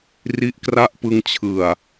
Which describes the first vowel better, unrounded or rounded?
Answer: unrounded